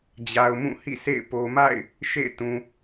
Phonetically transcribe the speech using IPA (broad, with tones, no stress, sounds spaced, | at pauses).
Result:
d͡ʑ a˨ ʊ̯ m ũ˦˨ h ḭ˦˨ s ḛ˦˨ ɪ̯ p o˨ m a̰˦˨ ɪ̯ | ʃ ḛ˦˨ ɪ̯ t ũ˨